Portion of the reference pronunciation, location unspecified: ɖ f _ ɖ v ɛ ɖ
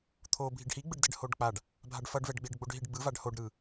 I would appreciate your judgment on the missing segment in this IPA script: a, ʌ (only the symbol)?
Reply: ʌ